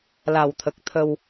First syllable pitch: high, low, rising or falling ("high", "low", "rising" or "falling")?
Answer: low